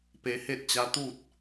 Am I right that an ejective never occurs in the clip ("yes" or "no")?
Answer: yes